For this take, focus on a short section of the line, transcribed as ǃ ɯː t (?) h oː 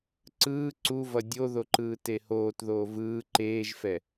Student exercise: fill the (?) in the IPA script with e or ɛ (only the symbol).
e